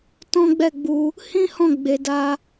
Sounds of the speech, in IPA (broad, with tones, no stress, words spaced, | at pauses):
tɔ̃˦ɡ͡bɛ˦˨ɡ͡bu˧ | hĩ˦ hɔ̃˦˨ɡ͡be˨da˧